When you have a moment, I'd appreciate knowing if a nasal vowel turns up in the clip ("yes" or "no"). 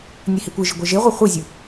no